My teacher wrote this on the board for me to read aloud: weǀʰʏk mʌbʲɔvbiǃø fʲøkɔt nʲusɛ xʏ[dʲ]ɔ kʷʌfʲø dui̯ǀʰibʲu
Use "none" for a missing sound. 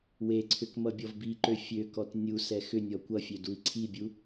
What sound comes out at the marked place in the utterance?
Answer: nʲ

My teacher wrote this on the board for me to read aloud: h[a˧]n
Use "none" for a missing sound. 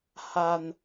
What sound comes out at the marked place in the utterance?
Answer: a˧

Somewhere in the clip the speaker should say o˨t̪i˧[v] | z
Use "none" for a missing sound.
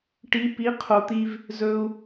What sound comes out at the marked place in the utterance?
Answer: v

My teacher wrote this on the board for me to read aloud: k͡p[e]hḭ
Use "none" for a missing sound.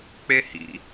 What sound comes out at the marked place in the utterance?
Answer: e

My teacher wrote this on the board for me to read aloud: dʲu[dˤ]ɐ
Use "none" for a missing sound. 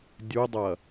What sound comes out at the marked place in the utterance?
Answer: dˤ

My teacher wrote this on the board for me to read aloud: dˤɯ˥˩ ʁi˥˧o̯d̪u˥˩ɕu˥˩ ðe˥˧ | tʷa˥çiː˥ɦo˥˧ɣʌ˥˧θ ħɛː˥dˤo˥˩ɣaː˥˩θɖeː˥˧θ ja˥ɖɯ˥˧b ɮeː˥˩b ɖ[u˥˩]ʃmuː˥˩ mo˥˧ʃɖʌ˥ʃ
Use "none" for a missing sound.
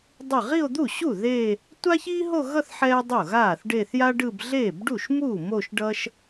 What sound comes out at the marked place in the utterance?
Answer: u˥˩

